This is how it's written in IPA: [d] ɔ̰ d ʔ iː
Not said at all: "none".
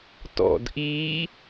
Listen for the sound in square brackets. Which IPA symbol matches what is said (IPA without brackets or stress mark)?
t